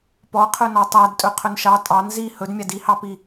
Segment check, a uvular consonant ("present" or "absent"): present